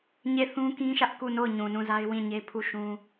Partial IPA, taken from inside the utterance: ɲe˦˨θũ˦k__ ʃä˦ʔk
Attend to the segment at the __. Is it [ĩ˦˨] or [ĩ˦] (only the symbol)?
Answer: ĩ˦